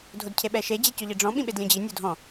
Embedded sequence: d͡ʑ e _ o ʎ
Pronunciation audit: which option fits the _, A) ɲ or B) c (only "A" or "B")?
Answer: B